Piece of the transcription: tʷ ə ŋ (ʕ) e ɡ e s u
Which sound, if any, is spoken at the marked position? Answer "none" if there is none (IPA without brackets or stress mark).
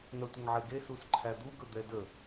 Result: ʕ